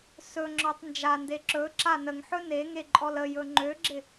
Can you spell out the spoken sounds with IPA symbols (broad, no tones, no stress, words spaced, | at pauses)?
sɵŋ͡ǁɔtˤ nd͡ʒande ǁɵ ǁanəŋħɵ neŋe ǃʼɔləjɵ ŋ͡ǃøɡ͡ǁɪ